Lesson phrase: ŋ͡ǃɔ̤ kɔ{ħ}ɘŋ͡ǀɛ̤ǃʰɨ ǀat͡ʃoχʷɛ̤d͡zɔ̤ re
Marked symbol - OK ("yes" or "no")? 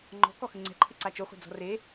no